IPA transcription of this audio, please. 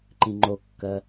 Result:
ǃĩŋ͡ǃokːɜ

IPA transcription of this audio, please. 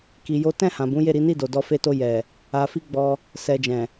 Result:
ki˧jo˦ tɛ̃˦˨hã˨bũ˨˦ je˦˨ɾi˨˦ni˦˨do˨ dɔ˧fe˧to˧ jɛ˨ | a˧ fi˦ ɡ͡bɔ˧ | sɛ˧ d͡ʒɛ̃˨

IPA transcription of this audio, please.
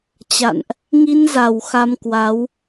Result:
t͡ɕa̰˧˨nʔ | ŋi˧nza˨˩w xa˧mkwa˨˦w

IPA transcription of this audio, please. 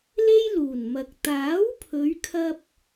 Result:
le˥jluː˨˩nmɐ˨k̚ t̪aː˨˥wpʰɵ˨˧ɥkʰɐ˧p̚

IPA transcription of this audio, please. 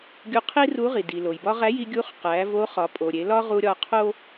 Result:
ɡʲu˧qʰi˥ ru˧˥ʁi˩di˩ lo˩jbɒ˥ ʁæ˧˥ji˧ ɡʲu˧˥χqæ˩˧ vo˧˥χɒ˩˧pʼo˩ɾʲe˩˧ lɒ˥ʁu˧ɾʲɒ˧ qʰo˥

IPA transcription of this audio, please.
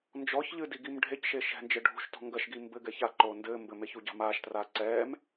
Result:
nd͡ʒɔçʎɨdiɡim ɖʱecʃe ʃɛ̤nd͡ʒɘ ɖʱṳʃtɔ̤ ŋɡɐʃɡi mbɘɡɛ çaǃoː ndɘː mbɘmeçuɟa̤ maːʃtraː ǀɛːm

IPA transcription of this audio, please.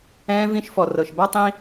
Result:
ɛ̃ː˧vĩ˧ʃ fɔ˨rɤ˨ʃba˦ tˤĩ˦

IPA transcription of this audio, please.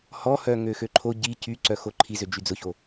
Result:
hɔhœ ŋøxøǃʰo ɟi cyǀœxo ǃʰizød͡ʒy d͡zʊço

